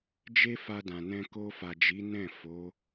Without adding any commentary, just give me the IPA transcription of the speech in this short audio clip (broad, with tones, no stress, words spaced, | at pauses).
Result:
d͡ʒe˦fa˧dã˨nɛ̃˧ ko˧fa˨d͡ʒi˨˦ nɛ̃˦˨ fo˨˦